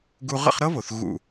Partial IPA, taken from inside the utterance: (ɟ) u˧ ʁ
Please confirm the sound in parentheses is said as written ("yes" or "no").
no